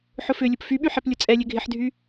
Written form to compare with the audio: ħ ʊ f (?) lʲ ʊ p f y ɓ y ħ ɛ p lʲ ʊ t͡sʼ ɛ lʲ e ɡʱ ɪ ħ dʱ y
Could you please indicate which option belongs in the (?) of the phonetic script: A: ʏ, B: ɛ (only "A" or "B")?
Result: A